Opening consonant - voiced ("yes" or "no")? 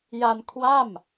yes